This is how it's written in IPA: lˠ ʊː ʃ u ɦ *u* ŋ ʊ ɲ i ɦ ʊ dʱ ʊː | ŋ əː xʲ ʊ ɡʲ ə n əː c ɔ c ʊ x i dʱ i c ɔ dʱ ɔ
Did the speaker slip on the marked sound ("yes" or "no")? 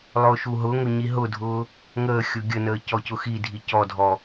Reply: yes